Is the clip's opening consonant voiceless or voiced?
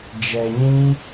voiced